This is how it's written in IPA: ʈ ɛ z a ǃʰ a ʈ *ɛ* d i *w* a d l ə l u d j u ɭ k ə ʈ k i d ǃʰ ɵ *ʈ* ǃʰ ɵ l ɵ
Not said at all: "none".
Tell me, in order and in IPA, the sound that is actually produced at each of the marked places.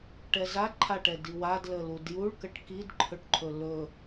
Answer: ɛ, w, ʈ

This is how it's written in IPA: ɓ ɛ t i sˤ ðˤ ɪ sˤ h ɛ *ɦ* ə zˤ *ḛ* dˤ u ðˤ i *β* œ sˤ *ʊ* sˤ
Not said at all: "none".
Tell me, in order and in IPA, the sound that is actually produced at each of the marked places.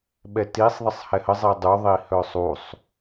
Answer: h, e, h, u

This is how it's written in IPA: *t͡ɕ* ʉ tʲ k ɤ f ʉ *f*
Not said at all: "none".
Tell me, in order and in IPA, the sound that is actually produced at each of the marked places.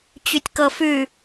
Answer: t͡ɕ, none

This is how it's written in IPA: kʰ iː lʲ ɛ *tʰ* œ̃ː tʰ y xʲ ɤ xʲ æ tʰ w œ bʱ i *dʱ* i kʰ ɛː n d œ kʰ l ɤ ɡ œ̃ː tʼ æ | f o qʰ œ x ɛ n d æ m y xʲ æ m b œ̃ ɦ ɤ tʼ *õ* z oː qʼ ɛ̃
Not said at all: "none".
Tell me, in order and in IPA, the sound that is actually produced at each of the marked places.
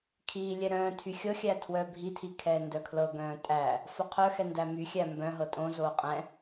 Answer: ɾ, tʰ, õ

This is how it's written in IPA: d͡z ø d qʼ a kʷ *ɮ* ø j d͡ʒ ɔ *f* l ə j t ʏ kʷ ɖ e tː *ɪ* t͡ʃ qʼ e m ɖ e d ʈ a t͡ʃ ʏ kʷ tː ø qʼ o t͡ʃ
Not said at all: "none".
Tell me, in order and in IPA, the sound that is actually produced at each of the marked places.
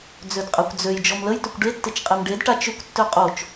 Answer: d͡z, m, ɪ

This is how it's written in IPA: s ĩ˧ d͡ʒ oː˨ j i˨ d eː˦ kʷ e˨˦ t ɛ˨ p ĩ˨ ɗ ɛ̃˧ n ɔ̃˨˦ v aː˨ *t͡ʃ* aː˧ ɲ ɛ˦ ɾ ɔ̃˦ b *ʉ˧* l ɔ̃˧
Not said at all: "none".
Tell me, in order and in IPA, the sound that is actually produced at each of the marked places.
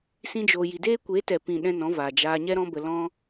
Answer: d͡ʒ, ə˧

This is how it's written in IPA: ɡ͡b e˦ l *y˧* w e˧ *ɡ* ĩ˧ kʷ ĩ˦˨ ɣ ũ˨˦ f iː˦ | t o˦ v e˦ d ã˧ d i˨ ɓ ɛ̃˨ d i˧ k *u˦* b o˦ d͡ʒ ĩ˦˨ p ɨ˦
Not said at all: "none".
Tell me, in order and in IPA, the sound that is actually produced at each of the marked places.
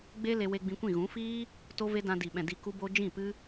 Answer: e˧, ɡ͡b, u˦

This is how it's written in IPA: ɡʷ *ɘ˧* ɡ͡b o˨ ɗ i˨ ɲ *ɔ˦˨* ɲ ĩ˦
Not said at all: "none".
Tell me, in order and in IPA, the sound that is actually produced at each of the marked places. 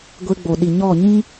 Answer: e˧, ɔ˦˨

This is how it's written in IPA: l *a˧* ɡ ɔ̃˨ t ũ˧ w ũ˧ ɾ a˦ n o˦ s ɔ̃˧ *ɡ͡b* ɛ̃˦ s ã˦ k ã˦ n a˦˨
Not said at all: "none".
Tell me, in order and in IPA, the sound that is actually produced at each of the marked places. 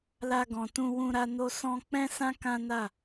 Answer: a˧, k͡p

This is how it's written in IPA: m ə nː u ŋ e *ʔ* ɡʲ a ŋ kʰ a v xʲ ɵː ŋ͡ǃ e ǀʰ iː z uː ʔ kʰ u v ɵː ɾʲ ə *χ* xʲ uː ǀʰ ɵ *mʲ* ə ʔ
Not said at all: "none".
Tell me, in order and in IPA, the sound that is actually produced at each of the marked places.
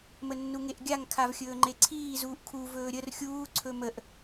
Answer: ʔ, r, m

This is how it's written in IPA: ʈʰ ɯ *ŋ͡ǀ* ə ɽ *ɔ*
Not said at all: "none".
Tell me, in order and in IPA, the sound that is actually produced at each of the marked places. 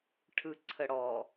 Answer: ǀʰ, ɔ

